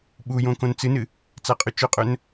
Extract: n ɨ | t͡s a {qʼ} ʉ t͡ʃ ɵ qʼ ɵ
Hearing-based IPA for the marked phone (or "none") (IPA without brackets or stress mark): qʼ